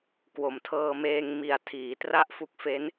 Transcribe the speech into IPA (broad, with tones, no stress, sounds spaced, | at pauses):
k w o˩˦ m tʰ ɤː˧ m eː˧ ŋ m i˨˩ a̯ tʰ iː˩˦ t r a˦˥ ʔ f u˦˥ k̚ f e˦˥ n